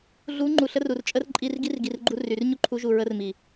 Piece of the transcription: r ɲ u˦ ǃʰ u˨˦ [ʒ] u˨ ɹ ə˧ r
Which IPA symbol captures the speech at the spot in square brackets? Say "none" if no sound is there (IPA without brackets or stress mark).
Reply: ʒ